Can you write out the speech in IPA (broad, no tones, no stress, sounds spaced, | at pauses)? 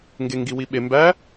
ŋ ɡ e ŋ ɡ i w i ɓ e m b æ